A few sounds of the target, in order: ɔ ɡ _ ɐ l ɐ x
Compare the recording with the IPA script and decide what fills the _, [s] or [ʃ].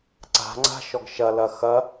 ʃ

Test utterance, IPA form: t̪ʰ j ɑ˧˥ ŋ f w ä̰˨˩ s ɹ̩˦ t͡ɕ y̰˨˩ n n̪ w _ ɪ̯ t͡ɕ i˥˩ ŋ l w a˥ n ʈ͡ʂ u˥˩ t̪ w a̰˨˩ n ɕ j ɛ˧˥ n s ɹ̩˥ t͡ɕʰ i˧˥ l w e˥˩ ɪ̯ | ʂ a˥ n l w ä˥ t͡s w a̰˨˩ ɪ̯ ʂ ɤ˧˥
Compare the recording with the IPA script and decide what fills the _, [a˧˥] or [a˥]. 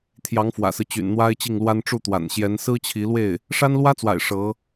a˥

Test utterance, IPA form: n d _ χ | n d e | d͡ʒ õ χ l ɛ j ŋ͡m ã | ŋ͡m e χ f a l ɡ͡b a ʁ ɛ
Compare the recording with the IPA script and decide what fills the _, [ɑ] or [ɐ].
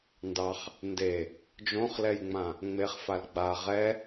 ɑ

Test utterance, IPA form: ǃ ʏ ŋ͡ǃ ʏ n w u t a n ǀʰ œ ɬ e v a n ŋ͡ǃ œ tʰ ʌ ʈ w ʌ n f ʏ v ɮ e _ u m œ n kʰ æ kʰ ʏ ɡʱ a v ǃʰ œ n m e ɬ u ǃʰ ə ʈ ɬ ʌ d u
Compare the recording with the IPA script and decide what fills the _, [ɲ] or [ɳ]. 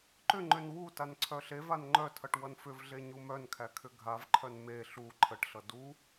ɲ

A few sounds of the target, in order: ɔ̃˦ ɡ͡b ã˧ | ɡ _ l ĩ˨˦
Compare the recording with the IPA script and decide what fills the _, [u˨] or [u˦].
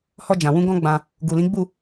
u˨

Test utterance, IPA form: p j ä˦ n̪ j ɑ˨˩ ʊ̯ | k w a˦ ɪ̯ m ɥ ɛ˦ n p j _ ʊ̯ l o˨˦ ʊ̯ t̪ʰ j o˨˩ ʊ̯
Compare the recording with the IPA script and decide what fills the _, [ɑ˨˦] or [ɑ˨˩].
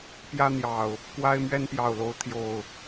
ɑ˨˩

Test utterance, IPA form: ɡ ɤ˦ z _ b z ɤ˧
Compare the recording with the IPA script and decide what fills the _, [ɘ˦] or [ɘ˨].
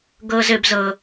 ɘ˦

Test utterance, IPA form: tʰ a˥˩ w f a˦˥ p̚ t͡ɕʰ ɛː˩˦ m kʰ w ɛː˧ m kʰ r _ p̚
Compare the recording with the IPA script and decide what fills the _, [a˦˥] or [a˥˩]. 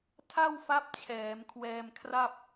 a˥˩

